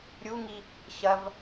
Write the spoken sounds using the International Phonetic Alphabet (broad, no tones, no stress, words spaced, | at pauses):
ɾʲuŋi | ɕɐv